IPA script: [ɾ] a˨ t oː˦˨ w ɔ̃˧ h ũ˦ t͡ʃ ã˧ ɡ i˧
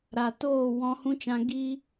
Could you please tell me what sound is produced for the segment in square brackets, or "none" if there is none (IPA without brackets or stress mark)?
ɾ